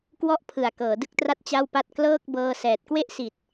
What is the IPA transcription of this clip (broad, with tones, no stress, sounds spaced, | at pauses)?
k w ɔ˥˩ ʔ pʰ ɯ˨˩ a̯ k ɤː˩˦ d ɯ˥˩ k̚ t r a˥˩ t̚ t͡ɕ a˥˩ w p a˥˩ t̚ k l ɤː˥˩ k̚ b ɤː˧ s ɛː˨˩ t̚ k w e˥˩ ʔ s i˨˩ t̚